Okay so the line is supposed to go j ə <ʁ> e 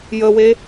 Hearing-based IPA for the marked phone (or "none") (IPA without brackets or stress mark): w